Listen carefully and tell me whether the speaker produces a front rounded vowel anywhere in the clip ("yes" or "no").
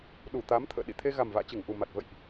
no